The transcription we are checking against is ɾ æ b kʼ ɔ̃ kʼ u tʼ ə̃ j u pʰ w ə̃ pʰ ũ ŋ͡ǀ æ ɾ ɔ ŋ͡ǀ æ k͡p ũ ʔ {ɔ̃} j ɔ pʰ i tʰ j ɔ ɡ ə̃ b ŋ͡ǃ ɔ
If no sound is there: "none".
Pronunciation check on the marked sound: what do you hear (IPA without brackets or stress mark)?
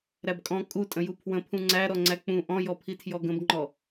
ɔ̃